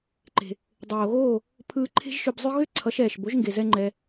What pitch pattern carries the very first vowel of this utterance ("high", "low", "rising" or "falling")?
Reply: low